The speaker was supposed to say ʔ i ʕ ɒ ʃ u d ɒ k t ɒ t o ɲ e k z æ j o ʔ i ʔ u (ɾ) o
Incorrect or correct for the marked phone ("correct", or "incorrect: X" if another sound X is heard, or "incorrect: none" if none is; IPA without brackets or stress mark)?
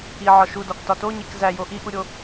incorrect: ɾʲ